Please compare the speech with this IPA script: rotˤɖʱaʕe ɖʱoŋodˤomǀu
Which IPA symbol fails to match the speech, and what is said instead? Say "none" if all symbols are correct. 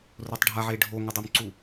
none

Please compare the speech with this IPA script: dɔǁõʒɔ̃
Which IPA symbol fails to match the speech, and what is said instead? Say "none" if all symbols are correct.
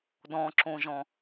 ɔ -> ɔ̃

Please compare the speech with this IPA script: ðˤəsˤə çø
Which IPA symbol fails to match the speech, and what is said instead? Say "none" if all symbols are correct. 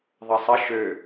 ç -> ʃ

